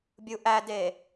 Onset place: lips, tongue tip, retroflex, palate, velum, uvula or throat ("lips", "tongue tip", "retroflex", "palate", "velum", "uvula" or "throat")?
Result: lips